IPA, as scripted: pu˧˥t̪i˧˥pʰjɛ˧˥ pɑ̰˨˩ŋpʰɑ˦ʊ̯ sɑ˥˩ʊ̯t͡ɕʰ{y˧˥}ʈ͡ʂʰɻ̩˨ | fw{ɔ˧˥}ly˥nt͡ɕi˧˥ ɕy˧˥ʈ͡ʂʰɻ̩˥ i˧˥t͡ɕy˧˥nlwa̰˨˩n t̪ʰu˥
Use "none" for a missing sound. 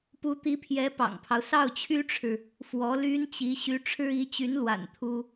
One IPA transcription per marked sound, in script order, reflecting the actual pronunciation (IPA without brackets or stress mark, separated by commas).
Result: y˥, ɔ˧˥